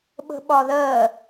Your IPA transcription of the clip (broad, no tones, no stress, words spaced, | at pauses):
ɓə̤ɓɒðɜ